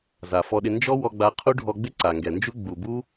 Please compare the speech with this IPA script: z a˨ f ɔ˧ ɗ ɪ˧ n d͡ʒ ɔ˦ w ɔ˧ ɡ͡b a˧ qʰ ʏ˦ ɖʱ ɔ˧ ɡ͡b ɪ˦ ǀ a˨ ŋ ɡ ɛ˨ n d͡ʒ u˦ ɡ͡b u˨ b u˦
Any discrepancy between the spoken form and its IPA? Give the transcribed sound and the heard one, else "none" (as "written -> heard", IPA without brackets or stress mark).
ʏ˦ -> u˦